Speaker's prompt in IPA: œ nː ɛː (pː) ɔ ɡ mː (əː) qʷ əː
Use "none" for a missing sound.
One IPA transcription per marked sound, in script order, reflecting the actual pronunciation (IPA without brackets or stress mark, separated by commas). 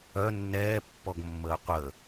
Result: pː, əː